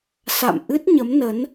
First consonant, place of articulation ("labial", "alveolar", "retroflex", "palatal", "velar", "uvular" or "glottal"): alveolar